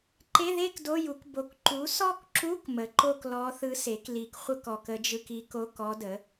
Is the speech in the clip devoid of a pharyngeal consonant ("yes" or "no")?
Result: yes